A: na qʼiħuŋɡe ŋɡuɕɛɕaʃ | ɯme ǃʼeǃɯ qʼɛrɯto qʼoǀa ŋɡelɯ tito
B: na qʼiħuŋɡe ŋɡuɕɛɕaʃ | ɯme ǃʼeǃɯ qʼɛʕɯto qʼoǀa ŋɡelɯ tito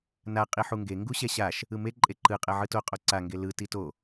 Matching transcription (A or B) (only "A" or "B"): B